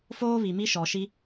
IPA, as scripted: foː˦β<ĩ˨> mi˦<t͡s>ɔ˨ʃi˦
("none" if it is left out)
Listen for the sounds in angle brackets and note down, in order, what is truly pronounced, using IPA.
i˨, ʃ

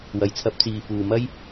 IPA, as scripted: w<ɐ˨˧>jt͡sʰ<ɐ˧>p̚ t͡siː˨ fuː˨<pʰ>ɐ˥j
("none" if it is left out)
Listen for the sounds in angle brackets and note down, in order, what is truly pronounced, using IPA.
ɐ˨, ɐ˧, m

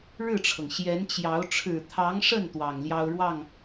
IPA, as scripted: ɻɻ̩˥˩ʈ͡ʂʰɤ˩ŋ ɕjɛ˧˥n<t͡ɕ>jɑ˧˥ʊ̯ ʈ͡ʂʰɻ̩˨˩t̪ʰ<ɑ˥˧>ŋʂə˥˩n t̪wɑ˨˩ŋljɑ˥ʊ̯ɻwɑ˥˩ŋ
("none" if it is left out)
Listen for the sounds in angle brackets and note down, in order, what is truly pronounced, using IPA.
t͡ɕ, ɑ˧˥

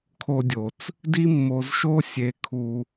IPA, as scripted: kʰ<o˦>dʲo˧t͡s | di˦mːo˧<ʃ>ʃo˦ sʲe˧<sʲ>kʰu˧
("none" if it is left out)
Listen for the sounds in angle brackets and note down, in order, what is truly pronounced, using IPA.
o˦, z, none

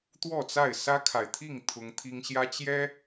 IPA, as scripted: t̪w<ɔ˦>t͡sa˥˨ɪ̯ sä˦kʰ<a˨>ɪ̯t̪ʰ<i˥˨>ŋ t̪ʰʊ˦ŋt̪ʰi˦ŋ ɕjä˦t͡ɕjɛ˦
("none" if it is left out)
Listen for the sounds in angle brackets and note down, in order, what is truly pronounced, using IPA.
ɔ˥˨, a˨, i˥˨

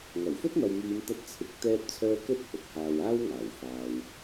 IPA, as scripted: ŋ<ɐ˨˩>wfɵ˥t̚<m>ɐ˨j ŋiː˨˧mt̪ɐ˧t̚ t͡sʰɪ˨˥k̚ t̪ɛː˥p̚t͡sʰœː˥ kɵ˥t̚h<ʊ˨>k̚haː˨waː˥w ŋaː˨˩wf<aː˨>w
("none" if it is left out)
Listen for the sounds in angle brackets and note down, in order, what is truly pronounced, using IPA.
ɐ˨˩, m, ʊ˨, aː˨

